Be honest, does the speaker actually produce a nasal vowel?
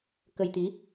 no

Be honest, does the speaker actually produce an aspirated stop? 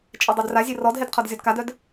yes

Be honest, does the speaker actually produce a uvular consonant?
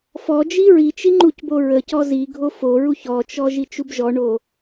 no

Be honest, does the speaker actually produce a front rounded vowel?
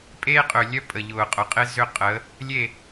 yes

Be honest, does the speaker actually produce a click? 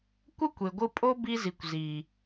no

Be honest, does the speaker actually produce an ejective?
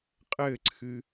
yes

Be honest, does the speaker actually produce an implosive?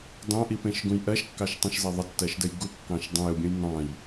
no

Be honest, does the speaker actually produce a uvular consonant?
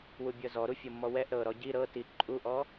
no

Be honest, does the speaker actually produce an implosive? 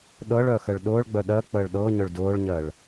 yes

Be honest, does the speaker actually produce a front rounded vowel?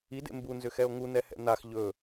yes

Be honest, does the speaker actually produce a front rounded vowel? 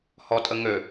yes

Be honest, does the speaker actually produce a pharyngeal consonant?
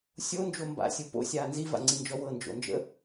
no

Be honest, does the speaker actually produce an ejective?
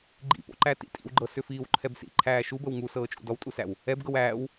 yes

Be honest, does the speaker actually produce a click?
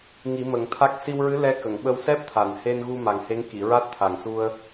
no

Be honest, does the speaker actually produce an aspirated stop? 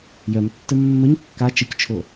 yes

